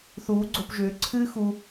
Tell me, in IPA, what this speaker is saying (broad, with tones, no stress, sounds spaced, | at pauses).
θ uː˨˦ ɡ͡ǀ o˧ p ʒ ʏː˨˦ ǀʰ ɨː˦ x u˧